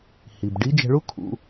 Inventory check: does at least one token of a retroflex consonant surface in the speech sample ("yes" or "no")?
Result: yes